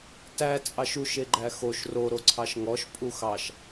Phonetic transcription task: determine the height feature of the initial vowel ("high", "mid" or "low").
low